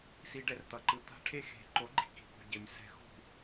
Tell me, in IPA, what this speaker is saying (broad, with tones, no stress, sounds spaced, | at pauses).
s i˧ ɖ ɛ˧ r t̪ ʌ˨ ǃ ɯ˧ t̪ a̤˦ ʈʰ e˦ x e̤˨˦ ǃ o˨˦ ɡ͡ǃ i̤˨ k i̤˨ k ṳ˨ ɟ e˧ m s ɛ̤˧ x ṳ˦˨